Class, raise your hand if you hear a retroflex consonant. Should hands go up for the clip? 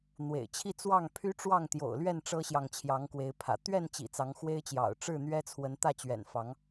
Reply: yes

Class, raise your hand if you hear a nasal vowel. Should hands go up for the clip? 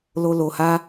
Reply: no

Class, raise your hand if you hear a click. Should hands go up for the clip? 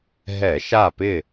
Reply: no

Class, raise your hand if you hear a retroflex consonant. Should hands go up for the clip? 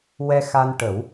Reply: yes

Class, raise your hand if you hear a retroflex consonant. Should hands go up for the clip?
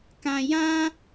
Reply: no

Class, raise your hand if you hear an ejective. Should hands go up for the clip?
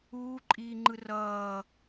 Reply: yes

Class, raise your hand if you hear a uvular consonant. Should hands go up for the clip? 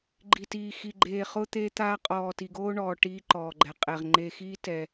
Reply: yes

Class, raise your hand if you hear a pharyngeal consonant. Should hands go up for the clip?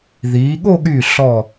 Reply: no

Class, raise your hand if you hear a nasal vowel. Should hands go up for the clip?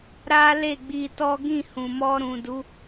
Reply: yes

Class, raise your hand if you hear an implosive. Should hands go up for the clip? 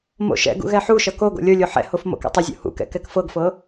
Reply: no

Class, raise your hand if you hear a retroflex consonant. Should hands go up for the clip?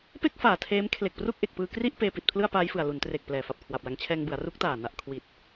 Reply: no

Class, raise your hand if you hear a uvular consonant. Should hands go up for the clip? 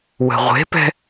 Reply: yes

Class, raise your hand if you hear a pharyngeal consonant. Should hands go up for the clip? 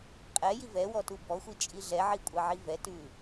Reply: yes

